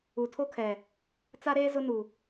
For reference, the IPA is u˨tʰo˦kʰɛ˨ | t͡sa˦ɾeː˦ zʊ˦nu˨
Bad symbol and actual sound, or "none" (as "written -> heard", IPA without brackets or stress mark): none